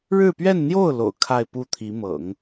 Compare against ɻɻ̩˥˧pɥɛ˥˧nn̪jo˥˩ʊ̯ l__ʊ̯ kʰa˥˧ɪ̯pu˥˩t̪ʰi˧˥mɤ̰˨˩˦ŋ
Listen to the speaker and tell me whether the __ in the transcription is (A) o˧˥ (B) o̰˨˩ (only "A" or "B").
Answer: B